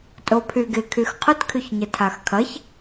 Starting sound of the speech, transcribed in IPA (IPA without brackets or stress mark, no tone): tʼ